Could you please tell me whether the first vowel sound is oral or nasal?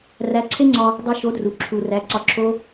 oral